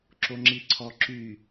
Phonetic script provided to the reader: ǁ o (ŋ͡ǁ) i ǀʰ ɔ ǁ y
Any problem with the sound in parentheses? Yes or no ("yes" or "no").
no